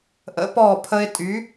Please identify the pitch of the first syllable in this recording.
rising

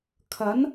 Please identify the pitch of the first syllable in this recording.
rising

